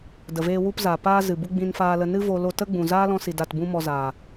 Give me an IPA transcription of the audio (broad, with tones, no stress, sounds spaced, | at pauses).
d ə˨ v eː˧ w u˧ p z a˨ p aː˦ z ɨ˨ b u˦ ɡ͡b ĩ˧ n f aː˧ l ə˧ n ɨ˦ v o˧ l o˧ t ə˦ ɡ͡b ũ˨ z aː˦ l ɔ̃˧ s i˨ d a˦˨ t b ũ˦ m ɔ˧ z aː˨